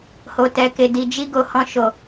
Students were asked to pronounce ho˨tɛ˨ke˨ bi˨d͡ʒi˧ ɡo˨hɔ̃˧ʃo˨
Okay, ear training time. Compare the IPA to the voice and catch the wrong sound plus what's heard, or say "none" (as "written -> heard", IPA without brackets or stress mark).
b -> d